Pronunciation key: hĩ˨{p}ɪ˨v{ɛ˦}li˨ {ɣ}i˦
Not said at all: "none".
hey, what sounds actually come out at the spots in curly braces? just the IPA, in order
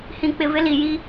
k͡p, ɪ˦, j

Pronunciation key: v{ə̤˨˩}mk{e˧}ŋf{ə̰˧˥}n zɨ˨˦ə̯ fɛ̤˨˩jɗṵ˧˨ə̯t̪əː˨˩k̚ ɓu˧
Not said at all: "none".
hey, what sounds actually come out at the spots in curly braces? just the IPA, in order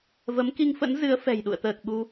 ə˨˦, i˧, ə̰˧˥

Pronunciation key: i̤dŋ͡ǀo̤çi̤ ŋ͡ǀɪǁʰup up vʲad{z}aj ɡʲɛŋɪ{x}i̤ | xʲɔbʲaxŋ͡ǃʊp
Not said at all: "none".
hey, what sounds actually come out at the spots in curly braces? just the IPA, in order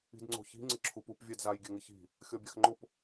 z, ç

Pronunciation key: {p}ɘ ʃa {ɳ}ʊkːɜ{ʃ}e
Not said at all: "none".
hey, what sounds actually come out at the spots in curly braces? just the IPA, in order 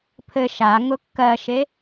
pʰ, ŋ, ʃ

